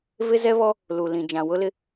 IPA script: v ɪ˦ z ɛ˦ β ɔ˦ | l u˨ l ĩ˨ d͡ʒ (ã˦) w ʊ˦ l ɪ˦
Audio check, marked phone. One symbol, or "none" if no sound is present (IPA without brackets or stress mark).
ã˨